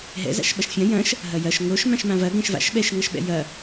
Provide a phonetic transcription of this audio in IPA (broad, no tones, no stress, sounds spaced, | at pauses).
ɦ ɛ̰ z a̰ ʃ ɓ ɐ ʃ fʲ ɐ̃ j ɐ̃ ʃ | ɦ ɐ j ɐ ʃ ŋ o ʃ m ã ʃ m ã v ɐ ɡ ɛ̃ ʃ v a̰ ʃ ɓ ɛ ʃ ŋ ɐ ʃ ɓ ɛ̰ j ɐ